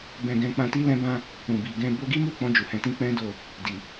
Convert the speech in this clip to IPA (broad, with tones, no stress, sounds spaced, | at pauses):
b ɛ̃˧ ɡ ɛ̃˧ k͡p ã˧ t i˧ l ɛ̃˧ b ã˧ | ũ˨ b i˨ ɡ ɛ̃˧ b o˧ ɡ i˦ m u˦˨ k͡p ɔ̃˧ d͡ʒ u˨ h ɛ̃˨ t ĩ˧ k͡p ɛ̃˦ d o˦˨ | d i˨